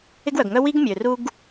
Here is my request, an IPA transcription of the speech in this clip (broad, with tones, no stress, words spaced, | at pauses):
ɪ˥ɡwœ˩ɡŋœ˥ wi˥ɡmʲø˩ ru˥ɡ